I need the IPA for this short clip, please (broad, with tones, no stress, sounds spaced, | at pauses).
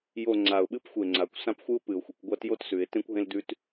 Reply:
j o˥˨ ŋ͡ǀ a˨˩ ʊ̯ ɓ ɨ˥ p xʷ e˨˩ ŋ͡ǀ a˩˧ kʷ s ã˥ p xʷ ɨ˥ ʊ̯ p ɨ˨˩ ʊ̯ xʷ ɨ˩˧ kʷ ɡʷ a˥ t j o˥ t s ʉ˩˧ ɪ̯ t ẽ˥ kʷ ɦ ẽ˥ l d ʉ˥ t